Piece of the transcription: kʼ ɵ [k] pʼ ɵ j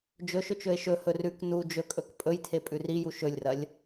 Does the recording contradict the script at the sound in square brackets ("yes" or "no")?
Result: no